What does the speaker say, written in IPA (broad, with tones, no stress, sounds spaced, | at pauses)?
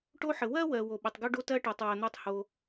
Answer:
ʈ o˥ ħ ə˩ w ɜ˥ w ɜ˩ w o˩ ɓ ə˩ tˤ ɡ o˥ ɖ o˥ t ɜ˥ ʈ ɜ˩ tˤ w ɜ˩ n̪ o˥ tˤ h o˩